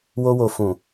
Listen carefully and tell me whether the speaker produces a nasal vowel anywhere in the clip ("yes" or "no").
yes